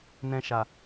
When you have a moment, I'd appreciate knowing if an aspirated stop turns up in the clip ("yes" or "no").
no